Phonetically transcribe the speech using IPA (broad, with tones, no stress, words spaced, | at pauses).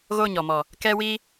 ɣo˦˨ɲɔ˨mɔ˨ | kɛ˦wi˦